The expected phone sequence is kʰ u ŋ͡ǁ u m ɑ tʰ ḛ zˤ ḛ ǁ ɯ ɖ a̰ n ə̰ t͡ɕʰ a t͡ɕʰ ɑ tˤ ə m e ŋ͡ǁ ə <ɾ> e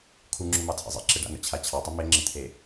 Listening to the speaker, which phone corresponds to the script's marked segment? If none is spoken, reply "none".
t̪ʰ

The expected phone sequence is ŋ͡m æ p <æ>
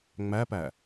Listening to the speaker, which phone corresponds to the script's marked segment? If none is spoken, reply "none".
æ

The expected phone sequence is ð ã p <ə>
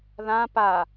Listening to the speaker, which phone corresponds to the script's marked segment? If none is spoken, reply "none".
a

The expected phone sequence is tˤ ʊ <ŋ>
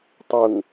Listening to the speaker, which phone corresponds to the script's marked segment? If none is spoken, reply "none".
ŋ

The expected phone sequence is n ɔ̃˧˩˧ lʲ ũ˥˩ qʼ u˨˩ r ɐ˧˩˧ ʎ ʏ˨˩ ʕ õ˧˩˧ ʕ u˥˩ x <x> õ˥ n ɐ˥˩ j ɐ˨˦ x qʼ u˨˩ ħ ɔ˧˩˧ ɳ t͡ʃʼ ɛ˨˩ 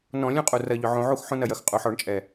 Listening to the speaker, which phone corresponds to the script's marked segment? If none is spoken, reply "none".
ħ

